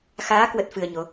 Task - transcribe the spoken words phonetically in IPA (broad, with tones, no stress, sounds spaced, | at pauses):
x aː˨˦ k w ə˦˥ t̚ f ɨ˧ ə̯ ɲ o˨˦